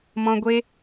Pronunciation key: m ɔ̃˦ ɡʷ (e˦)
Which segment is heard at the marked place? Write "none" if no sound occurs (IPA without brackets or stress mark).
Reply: e˦